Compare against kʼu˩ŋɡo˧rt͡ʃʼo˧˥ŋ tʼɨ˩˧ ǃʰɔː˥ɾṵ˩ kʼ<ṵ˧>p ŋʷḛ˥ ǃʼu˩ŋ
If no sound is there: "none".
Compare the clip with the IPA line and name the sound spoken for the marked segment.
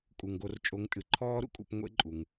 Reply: ṵ˧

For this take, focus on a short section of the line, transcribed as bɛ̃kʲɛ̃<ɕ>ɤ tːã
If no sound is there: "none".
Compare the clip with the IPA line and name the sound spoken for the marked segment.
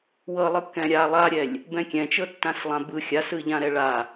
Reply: t͡ʃ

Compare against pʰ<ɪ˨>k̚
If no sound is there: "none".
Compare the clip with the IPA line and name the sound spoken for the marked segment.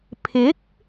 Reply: ɪ˨˥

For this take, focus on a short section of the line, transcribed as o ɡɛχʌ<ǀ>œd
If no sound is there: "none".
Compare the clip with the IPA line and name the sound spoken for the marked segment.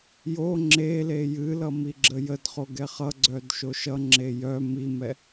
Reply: ɡ͡ǀ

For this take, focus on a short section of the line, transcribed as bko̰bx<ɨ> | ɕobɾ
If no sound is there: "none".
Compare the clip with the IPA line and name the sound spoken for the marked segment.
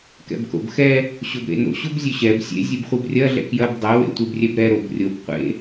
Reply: ɛ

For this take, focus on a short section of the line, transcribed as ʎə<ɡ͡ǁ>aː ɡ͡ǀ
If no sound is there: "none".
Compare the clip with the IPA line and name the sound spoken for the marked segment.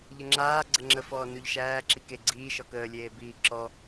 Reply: ŋ͡ǁ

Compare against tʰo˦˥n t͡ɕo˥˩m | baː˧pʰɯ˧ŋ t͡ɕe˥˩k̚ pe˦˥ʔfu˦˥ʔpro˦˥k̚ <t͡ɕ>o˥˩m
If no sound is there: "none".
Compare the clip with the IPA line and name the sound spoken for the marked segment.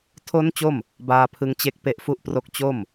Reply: t͡ɕ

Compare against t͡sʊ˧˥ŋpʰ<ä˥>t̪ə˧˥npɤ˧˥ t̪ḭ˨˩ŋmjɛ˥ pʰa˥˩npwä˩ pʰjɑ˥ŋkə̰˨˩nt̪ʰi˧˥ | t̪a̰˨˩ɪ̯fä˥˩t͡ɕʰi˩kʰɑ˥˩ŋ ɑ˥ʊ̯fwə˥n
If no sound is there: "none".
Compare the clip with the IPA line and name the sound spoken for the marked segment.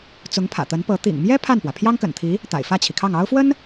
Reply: ä̰˨˩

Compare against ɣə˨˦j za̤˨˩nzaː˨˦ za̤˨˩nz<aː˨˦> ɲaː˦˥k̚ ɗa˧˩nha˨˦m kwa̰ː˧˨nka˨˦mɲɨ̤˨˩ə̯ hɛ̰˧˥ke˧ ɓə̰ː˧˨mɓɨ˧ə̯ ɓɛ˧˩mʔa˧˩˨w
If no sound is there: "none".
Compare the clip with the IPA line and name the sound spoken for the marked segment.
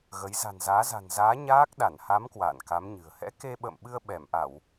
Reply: aː˨˦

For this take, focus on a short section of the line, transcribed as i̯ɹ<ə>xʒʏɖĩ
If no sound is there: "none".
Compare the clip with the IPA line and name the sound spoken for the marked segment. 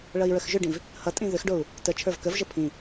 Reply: ə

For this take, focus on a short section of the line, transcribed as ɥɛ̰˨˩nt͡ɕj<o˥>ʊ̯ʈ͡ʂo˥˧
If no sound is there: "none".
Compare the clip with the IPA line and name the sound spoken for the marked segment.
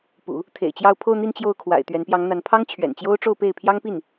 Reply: o˥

